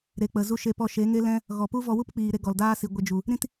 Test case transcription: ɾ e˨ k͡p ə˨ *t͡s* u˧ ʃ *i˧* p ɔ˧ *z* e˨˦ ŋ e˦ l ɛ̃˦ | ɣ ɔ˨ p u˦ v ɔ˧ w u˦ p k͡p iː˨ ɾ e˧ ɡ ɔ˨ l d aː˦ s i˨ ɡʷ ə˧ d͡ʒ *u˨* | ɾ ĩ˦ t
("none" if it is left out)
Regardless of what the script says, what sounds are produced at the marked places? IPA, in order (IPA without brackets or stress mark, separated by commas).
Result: z, e˧, ʃ, u˨